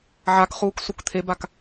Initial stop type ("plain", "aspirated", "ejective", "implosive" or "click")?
plain